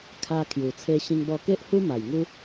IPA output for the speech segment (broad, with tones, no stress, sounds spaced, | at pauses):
kʰ a˧ kʰ j u˨˩ t͡sʰ e˧ ɕ ĩ˧ ŋ b ɔ˧ k e˦ ʔ h u˦ m a˨˩ j ŋ u˦